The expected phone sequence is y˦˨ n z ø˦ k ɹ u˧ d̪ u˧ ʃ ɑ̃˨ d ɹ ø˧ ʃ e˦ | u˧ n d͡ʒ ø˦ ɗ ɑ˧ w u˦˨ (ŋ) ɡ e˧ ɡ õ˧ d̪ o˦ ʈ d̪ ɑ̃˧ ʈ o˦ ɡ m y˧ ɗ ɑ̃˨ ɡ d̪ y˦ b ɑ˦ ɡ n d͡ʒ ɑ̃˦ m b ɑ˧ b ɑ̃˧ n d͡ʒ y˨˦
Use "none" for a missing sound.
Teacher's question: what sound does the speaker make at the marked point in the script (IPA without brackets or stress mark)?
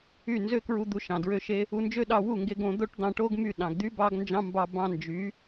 ŋ